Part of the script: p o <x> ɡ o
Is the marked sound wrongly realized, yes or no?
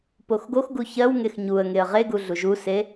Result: no